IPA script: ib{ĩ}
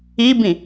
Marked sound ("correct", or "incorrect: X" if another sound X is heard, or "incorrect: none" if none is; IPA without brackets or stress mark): correct